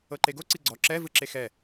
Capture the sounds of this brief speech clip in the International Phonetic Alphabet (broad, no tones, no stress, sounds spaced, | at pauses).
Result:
ɤ ǃ e ɡ o ǀ i ɡ͡ǀ ɔ ǁ ɛ v ɯ ǁ e x ɛ